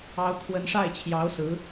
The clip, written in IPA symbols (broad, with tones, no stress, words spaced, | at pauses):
ɑ˥ʊ̯kʰwə˥n ʂa˥˩ɪ̯t͡ɕʰjɑ˧˥ʊ̯ sɹ̩˧˥